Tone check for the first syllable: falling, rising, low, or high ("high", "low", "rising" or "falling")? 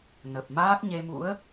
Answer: low